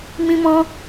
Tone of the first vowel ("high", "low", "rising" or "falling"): high